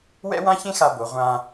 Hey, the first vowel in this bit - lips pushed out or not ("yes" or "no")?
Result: no